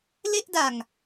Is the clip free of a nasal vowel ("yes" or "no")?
yes